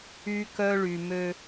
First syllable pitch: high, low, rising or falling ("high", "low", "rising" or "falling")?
high